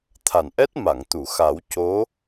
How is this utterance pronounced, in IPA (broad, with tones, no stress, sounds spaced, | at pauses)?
t̪ʰ a˨˩ n ʔ ɛ˦˥ t̚ m a˨˩˨ ŋ t̪ u˨˩˨ x a˨˩˦ w c o˧˥